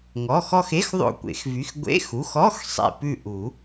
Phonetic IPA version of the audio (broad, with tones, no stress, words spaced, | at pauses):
ŋɔ˩˧˩xɔ˦˨xe˧˥˧x ðˤo̰˦˨kʷḛ˨˩˦xvy˩˧˩x ɡʷḛ˧˥˧xu˩˧˩x ɔ˧˥˧x sˤḛ˦˨pʉ˦˨ ʔu˨˩˦